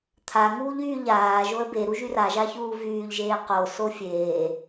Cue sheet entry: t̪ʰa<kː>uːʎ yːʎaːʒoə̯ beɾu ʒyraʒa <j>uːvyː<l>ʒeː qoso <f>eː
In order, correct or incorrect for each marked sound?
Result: incorrect: ŋ, incorrect: ç, incorrect: ʎ, incorrect: fʲ

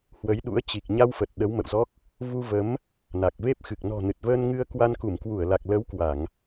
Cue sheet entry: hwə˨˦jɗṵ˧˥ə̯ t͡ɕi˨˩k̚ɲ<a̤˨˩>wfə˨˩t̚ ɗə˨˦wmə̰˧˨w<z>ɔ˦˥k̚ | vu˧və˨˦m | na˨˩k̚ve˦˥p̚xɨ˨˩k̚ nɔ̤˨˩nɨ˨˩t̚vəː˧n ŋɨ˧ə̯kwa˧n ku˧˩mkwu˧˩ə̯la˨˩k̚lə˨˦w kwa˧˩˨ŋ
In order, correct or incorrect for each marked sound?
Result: incorrect: a˧, correct

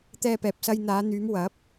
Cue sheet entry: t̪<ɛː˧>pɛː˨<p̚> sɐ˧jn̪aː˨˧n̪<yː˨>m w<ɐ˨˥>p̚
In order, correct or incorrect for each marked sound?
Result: correct, correct, incorrect: yː˨˧, correct

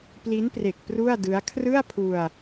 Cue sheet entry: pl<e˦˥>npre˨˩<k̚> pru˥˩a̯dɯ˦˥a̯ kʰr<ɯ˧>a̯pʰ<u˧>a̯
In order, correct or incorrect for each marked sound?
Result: incorrect: i˦˥, correct, incorrect: ɯ˥˩, correct

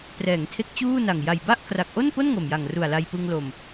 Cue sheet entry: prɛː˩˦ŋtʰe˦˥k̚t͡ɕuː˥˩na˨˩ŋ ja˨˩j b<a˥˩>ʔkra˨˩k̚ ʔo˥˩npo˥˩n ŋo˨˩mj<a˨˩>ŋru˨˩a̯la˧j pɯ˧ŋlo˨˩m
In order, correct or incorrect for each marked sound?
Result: correct, correct

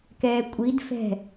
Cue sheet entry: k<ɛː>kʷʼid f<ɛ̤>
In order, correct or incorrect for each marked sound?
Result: correct, correct

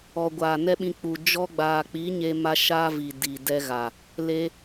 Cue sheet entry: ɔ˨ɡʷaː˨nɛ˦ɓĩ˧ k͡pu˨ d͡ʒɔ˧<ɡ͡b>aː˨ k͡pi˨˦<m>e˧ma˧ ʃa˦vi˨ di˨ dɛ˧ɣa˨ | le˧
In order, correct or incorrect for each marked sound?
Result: correct, incorrect: ɲ

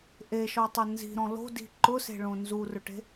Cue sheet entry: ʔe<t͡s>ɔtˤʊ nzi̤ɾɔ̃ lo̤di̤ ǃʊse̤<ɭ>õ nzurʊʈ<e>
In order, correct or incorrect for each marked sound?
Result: incorrect: ʃ, correct, incorrect: e̤

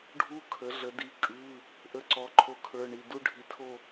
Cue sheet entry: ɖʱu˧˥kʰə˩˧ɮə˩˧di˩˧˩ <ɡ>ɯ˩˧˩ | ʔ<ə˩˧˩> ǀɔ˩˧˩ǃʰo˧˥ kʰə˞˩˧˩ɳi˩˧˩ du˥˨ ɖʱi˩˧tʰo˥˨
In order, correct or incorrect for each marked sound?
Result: incorrect: kʼ, incorrect: ə˧˥

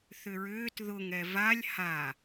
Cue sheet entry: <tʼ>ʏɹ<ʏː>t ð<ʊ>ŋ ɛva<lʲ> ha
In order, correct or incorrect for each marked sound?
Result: incorrect: θ, correct, correct, correct

